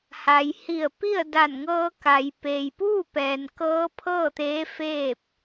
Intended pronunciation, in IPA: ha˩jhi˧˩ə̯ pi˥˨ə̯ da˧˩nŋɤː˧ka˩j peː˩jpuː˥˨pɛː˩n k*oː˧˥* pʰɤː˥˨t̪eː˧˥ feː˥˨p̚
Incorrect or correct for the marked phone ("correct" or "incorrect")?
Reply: incorrect